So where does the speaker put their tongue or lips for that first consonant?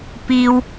lips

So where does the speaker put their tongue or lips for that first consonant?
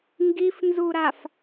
velum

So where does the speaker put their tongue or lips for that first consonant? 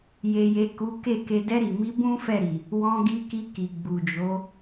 palate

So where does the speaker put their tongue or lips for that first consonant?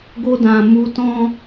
velum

